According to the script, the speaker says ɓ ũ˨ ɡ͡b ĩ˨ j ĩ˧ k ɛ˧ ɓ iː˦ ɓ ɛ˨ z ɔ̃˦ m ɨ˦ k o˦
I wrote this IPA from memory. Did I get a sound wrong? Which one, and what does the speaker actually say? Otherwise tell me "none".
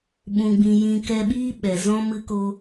none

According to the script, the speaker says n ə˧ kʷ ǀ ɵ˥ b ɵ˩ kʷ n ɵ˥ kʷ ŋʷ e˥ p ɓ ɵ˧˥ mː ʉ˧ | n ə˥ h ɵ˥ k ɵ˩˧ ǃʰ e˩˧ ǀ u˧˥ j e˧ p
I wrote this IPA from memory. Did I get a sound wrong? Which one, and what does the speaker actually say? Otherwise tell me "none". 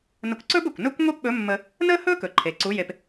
ʉ˧ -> ə˧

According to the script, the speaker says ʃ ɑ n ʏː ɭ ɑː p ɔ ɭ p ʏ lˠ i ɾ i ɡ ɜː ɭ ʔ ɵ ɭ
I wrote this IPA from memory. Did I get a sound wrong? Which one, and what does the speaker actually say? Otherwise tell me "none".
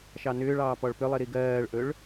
none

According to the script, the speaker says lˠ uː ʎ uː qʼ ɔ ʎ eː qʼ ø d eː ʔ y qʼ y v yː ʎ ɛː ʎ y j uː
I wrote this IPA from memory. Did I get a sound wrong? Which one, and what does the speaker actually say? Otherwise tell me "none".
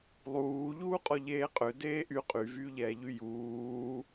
none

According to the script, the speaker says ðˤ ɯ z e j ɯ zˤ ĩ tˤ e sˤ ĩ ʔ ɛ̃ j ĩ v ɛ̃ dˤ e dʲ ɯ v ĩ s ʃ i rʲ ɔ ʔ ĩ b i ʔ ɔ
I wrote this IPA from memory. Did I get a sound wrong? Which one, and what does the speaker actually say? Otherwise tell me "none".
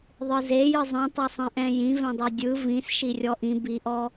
none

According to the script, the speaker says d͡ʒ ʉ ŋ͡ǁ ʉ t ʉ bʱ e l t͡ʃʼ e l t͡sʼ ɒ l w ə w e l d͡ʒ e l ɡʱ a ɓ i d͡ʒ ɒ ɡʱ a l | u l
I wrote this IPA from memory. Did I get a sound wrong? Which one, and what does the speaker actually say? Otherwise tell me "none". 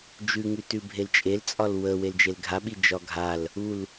ŋ͡ǁ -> ŋ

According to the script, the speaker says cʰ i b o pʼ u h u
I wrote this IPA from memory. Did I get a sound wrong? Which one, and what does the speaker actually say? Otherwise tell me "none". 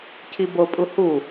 none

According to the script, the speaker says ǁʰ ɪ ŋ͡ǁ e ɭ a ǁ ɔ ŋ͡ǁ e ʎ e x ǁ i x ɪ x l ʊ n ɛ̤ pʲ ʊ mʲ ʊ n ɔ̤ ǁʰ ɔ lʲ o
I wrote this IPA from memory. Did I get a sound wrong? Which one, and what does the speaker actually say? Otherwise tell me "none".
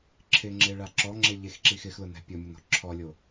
none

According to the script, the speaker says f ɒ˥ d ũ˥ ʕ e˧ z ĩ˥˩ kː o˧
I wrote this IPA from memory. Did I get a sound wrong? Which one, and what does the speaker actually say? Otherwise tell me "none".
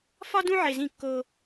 none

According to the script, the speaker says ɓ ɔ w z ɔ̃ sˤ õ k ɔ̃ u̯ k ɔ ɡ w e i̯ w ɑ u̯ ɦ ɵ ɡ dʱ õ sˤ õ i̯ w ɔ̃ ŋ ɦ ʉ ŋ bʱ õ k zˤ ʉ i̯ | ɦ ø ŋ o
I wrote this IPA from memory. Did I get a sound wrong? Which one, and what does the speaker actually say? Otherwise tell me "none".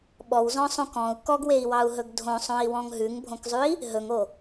ø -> ɵ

